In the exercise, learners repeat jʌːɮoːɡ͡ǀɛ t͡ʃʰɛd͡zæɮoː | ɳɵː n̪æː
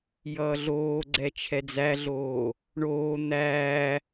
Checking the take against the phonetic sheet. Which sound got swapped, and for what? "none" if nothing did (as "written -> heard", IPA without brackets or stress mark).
ɵː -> oː